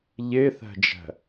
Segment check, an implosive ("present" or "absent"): absent